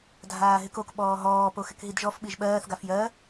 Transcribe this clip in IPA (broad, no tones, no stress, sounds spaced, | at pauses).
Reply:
dʱ aː ɦ ɪ k o k ɓ ɔː ɦ ɔː p o x ɪ k ɦ i d ʒ ɔ f ɓ i ʒ ɓ ɜː θ ɡ a f j ɜ